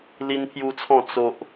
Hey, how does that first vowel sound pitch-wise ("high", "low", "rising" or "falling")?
high